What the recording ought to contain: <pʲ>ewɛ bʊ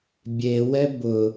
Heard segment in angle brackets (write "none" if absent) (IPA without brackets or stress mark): bʲ